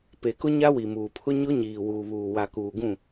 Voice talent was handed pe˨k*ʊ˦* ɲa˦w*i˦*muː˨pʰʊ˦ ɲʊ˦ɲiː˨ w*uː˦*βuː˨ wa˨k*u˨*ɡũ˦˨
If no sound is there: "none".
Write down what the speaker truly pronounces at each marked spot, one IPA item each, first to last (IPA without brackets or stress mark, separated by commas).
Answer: ʊ˦, i˨, uː˨, uː˨